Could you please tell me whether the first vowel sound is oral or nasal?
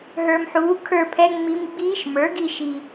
oral